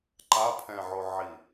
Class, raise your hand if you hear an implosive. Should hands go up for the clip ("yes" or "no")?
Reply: no